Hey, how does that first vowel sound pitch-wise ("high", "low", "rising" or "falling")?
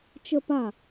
falling